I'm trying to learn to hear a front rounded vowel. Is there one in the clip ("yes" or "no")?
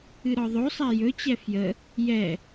no